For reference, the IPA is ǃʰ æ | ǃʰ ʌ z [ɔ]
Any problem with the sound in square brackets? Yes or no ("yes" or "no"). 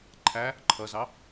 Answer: yes